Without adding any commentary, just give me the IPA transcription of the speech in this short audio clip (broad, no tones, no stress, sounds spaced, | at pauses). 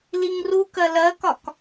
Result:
l i ŋ r u k ɜ l ɜ k ɒ k